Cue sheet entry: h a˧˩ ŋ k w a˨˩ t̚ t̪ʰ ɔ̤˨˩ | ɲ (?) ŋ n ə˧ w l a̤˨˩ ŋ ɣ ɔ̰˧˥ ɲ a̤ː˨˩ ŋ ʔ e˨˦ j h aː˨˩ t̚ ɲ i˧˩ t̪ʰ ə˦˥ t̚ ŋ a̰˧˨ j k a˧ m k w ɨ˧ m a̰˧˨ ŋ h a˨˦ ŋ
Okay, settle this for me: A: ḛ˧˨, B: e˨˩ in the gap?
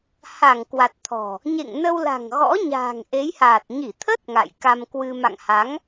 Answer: A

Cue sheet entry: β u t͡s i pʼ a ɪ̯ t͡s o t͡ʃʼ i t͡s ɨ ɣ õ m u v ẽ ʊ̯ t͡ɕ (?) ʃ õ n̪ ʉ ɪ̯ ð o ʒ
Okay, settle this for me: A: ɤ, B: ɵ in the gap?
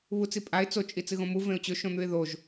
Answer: B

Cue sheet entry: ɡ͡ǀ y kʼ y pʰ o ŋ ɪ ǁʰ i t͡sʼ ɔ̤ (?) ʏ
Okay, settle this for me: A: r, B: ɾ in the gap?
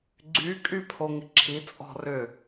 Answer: A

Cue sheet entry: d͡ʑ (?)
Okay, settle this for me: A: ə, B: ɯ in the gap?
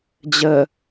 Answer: A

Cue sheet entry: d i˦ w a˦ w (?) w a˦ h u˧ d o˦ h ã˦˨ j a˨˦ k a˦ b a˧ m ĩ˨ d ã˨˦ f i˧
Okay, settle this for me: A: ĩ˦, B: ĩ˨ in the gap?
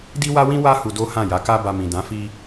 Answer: A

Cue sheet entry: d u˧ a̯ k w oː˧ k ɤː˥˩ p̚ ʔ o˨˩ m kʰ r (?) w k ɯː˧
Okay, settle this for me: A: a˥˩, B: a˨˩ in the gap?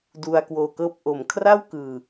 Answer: A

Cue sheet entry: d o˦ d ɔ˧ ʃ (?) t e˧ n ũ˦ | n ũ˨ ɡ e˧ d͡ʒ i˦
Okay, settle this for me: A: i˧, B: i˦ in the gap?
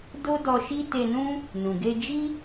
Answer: B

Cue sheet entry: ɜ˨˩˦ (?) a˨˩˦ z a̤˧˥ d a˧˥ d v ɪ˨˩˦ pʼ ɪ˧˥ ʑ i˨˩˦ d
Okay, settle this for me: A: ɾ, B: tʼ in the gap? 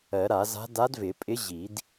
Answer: A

